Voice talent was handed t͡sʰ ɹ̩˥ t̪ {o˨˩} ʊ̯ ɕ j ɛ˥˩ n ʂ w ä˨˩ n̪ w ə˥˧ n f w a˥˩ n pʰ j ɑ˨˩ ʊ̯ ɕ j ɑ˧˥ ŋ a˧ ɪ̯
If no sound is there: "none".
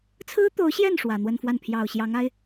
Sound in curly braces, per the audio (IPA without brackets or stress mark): o˧˥